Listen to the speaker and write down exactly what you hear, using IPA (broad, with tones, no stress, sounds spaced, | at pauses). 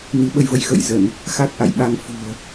n i˨˦ ɓ ə˧ j v ə˨˦ j x ə̰˧˨ j z ə˧˩˨ n | x a˦˥ k̚ ʔ a̰˧˨ j ɓ a˧ ŋ f ṳ˨˩ ə̯